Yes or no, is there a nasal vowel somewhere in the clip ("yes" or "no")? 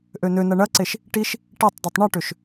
no